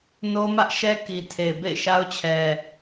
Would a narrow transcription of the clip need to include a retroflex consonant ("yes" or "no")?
no